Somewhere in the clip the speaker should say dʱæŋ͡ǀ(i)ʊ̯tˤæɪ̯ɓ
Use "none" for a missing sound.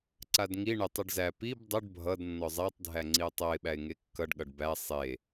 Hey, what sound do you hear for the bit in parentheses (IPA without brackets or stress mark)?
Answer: i